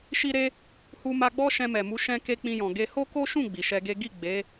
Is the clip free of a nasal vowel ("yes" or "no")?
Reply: no